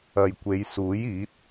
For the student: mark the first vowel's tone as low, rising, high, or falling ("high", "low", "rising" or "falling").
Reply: low